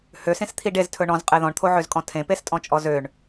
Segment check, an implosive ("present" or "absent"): absent